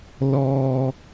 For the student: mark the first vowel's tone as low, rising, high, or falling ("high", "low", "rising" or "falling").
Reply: low